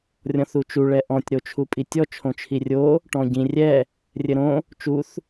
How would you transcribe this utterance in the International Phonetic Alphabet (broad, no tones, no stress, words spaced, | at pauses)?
rʲɔ̃θut͡ʃu ɭɛʔɔ̃tʲ ɾot͡ʃʰupʼitʲɔ t͡ʃʰõt͡ʃʰirʲo | ʈɔ̃ɟĩ rʲɛ | rʲɘɾõ | t͡ʃuθ